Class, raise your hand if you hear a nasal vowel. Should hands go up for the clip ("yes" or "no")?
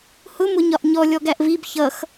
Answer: no